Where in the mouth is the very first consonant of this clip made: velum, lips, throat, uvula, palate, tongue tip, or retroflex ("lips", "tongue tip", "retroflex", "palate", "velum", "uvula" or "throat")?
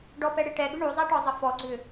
retroflex